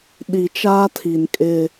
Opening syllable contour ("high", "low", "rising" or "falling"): low